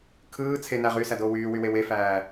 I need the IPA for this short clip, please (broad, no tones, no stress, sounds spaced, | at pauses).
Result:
kʰ ɯː t͡sʰ e n æ ʁ yː s æ d oː w yː w y w e w e f æː